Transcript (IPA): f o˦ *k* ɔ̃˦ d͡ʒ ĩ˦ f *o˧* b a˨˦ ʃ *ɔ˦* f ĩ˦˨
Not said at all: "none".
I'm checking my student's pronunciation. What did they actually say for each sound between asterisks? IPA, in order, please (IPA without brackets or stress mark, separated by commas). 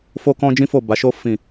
k, o˦˨, o˦